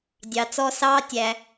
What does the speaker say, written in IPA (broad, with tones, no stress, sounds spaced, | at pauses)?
dʲ ɑ˨ t͡s ɔ˧ s ɑː˦ tʲ æ˧